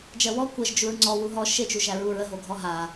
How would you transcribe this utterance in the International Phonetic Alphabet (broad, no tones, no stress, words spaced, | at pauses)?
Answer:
d͡ʒɜwɔ kʷəʒ d͡ʒuɹŋ͡ǀɔ wuɦɔ ʃet͡ʃu ʒæɹuɹə ɦoɡʱɔɦa